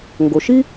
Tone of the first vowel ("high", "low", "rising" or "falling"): low